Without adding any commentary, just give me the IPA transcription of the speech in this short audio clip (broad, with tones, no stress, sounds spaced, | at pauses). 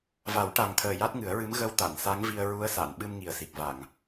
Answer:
v a˨˩˦ w ʈ a˨˩ ŋ t̪ʰ əː˨˩ j a˦˥ t̚ ŋ ɨ˨˩˦ ə̯ ɹ ɨ˧˥ m ɣ ə˧ w t̪ a˨˩˨ n s a˧˥ ŋ v i˧ ə̯ ɹ u˧˥ ə̯ s a˨˩˨ n ɓ ɨ˧ m ŋ i˨˩ ə̯ s i˨˩ k̚ v a˨˩˨ ŋ